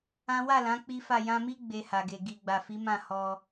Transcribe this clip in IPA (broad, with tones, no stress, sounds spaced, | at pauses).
ã˦ w a˦˨ l ã˨˦ k͡p i˦ f a˦˨ j ã˧ m i˦ ɡ͡b e˧ h a˨ ɡ e˨ ɡ i˨ ɡ͡b a˨ f i˨˦ m ã˦˨ h ɔ˧